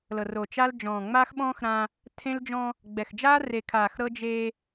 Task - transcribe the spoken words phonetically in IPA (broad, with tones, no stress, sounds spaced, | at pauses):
l ɤ˨ r o˨ t͡ʃ a˦ l d͡ʒ ɔ̃ː˨ ŋ͡m aː˦ x ɓ ɔ̃ː˦ x ɾ ã˦ | tʰ ẽ˦ l d͡ʒ ɔ̃˦ | ɡ͡b ɛ˨ x d͡ʒ aː˦ r e˨ kʰ aː˨ x ɾ ɤ˦ d͡ʒ eː˦